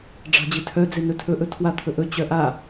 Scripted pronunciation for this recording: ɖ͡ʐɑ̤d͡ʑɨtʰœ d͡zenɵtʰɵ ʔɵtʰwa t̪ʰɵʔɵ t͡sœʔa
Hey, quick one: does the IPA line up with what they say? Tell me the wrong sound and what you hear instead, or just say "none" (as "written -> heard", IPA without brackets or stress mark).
t͡s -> t͡ɕ